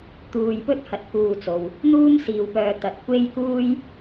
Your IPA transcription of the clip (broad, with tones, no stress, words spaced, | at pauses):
t̪uː˧j pɵ˥t̚hɐ˨t̚ kuː˧t͡so˨w | n̪uː˥m siː˧wpœː˧ t̪ɐ˨t̚kʷe˥jkuː˥j